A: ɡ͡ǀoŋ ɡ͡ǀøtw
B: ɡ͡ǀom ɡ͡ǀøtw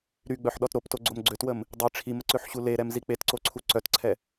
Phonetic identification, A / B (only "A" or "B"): B